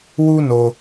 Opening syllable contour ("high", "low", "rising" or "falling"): high